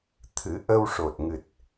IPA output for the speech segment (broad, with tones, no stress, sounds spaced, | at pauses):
t̪ʰ ɨ˨˩˦ ʔ ə˧ w ʂ o˨˩ t̚ ŋ ɨ˨˩ t̚